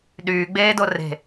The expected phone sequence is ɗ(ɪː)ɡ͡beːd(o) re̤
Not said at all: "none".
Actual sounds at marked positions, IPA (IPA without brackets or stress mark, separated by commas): yː, o